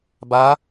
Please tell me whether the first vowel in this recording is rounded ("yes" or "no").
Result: no